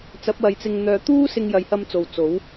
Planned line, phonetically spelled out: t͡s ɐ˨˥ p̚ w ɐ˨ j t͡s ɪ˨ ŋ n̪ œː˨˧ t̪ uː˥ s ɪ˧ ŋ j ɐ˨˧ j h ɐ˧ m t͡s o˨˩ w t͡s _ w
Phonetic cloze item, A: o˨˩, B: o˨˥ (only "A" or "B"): B